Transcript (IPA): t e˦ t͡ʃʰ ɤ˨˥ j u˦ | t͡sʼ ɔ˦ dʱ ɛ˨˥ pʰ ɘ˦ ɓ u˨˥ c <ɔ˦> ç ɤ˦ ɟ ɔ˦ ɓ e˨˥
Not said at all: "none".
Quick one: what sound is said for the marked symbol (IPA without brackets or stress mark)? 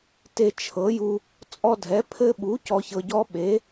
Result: ɔ˦